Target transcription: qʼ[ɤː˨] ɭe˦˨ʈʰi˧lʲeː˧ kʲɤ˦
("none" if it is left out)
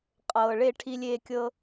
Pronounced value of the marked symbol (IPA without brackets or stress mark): ɤː˨